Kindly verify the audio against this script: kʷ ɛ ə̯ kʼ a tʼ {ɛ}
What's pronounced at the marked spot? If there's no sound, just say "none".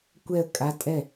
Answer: ɛ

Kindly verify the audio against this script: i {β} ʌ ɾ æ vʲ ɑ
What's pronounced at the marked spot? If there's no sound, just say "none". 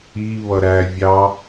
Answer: β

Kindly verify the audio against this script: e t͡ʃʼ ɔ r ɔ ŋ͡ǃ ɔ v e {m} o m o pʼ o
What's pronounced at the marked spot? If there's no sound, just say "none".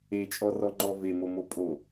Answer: m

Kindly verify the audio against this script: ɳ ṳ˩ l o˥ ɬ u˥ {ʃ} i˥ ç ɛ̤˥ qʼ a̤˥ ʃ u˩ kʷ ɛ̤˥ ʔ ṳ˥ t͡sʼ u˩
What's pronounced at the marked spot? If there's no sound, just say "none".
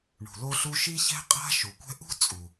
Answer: ʃ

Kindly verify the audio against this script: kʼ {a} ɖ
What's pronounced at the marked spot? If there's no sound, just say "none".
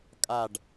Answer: a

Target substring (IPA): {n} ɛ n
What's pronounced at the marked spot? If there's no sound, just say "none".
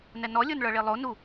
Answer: n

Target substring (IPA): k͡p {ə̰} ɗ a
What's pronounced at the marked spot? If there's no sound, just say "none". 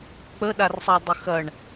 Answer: ə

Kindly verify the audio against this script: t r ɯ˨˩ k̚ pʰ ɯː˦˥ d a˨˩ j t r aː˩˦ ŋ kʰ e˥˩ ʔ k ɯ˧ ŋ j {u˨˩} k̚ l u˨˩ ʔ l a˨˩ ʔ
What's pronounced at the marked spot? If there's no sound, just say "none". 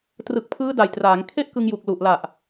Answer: u˨˩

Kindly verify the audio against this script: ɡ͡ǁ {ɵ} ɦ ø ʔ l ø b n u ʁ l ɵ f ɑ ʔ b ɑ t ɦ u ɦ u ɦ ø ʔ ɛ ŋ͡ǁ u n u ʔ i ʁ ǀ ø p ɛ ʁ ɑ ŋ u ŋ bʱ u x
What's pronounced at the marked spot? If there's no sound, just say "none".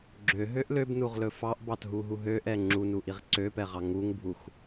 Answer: ø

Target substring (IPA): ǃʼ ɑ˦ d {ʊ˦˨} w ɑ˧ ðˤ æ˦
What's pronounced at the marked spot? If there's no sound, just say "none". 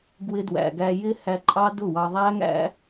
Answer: ʊ˦˨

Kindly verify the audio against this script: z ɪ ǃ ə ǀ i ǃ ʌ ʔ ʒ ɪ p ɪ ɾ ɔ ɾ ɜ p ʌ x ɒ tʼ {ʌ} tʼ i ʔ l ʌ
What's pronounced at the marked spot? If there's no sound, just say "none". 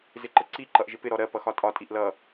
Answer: ɒ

